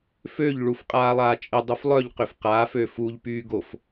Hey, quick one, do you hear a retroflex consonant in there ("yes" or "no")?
yes